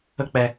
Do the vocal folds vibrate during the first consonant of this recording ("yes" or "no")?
no